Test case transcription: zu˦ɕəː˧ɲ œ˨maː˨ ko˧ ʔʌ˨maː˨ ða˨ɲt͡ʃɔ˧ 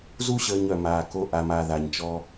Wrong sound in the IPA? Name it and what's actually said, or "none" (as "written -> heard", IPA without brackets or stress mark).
ʌ˨ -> a˨